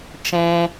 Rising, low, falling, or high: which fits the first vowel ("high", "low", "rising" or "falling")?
low